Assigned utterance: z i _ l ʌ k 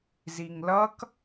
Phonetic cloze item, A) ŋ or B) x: A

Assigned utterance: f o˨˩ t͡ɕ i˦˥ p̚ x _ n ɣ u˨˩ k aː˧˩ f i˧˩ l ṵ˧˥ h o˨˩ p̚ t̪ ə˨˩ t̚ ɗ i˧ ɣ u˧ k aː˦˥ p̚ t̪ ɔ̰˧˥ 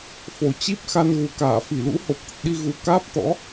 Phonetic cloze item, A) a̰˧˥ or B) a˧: B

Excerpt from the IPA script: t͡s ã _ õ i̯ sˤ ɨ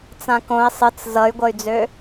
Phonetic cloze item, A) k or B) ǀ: A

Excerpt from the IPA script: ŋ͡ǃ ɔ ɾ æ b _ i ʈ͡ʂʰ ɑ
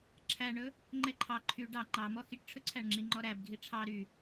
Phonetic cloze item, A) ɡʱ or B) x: A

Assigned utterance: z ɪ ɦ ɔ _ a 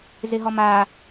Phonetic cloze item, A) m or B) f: A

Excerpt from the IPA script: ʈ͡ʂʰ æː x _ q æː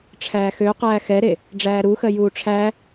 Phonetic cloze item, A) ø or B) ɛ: A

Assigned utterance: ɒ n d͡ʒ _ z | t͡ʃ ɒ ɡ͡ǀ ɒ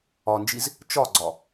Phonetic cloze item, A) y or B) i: B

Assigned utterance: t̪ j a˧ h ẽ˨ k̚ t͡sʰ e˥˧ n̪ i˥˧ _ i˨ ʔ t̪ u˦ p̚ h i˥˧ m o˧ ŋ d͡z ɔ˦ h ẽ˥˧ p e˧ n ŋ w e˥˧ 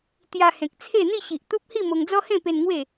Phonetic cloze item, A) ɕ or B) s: A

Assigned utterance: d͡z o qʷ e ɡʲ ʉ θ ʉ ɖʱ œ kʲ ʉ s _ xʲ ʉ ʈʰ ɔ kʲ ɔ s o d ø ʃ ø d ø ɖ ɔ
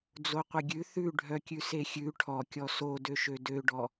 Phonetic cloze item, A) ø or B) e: B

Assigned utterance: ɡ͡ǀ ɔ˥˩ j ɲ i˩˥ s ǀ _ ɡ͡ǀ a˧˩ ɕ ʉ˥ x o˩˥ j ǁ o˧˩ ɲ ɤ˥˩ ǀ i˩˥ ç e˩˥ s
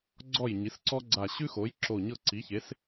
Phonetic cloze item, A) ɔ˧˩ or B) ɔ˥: B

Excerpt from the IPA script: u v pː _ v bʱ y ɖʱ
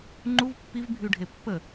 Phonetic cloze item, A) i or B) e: A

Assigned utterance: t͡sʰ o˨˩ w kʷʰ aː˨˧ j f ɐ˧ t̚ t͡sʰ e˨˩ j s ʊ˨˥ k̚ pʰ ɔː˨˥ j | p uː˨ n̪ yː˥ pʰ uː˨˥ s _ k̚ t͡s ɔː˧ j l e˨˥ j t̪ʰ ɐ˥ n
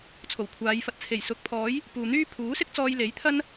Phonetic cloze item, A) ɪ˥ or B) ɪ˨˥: A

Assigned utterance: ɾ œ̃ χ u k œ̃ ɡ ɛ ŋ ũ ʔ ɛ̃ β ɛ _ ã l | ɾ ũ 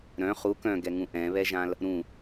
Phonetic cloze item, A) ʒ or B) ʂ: A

